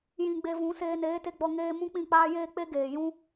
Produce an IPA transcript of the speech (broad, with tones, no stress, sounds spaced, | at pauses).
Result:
j ĩ˧ ɡ͡b e˧ v ũ˨˦ s eː˧ n eː˨˦ t e˧ ɡ͡b ɔ˧ ŋ eː˦ m ũ˦ k͡p ĩ˦˨ k͡p aː˦ j eː˦ k͡p e˦ ɡ eː˨ j ũ˦